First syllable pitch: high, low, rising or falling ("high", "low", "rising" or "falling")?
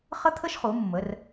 high